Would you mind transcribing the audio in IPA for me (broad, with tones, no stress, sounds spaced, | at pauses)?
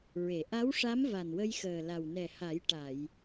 ɹ e˨˩˨ ʔ a˧˥ w ʂ a˧˥ m v a˨˩ n w ə˧ j x əː˨˩ l a˨˩ w n ɛ˨˩ h a˨˩˦ j ʈ a˨˩˨ j